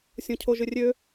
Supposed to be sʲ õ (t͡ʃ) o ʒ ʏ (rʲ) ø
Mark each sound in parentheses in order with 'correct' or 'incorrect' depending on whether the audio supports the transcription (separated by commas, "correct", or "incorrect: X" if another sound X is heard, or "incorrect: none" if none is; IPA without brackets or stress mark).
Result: incorrect: cʰ, correct